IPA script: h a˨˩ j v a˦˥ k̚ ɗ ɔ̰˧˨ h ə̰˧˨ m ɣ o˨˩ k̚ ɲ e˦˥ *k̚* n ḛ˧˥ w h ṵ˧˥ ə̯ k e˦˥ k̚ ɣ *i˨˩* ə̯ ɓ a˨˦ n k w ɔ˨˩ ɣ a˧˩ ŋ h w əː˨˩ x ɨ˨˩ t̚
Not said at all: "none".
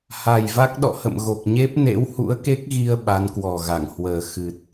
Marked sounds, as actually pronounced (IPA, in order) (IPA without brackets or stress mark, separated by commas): p̚, i˧